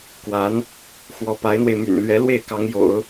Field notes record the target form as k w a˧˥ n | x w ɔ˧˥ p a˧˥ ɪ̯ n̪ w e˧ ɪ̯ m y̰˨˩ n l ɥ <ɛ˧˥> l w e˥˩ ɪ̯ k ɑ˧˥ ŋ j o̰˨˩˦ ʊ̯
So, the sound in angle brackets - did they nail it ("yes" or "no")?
yes